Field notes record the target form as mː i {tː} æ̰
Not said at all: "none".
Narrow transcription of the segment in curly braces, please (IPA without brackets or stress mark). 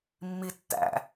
tː